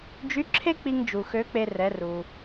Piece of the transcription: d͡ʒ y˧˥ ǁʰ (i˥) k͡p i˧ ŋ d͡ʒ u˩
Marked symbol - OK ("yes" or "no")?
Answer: no